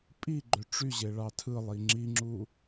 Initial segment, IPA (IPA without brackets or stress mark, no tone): pʼ